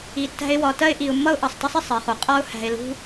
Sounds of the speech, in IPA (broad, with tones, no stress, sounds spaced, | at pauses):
i˨ tː æ̤˦ ɪ̯ w ɒ˨ t ɜ˥ ɪ̯ ʔ i˨ ʊ̯ mː ʌ˥ ʊ̯ ʔ ʌ˩ sˤ t ʌ˥ sˤ ɪ˨ sˤ ɜ˩ χ u˩ qʼ ɒ˥ ʊ̯ h æ̤˨ ɪ̯ l ṳ˦